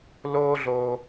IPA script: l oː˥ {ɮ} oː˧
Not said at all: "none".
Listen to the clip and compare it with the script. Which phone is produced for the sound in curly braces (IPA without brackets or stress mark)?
ɮ